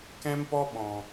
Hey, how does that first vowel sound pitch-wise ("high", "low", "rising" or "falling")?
high